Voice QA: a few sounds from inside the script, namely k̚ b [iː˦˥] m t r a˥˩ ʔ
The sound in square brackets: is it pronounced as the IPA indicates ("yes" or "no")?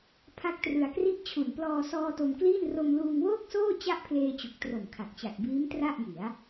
yes